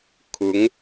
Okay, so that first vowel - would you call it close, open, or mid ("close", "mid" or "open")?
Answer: close